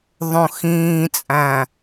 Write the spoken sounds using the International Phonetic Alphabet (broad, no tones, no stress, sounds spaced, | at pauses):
ðˤ õ x ĩː t͡sʼ æ̃